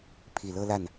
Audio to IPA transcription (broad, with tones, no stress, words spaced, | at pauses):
pʰi˨˩lɤ˥la˥˩n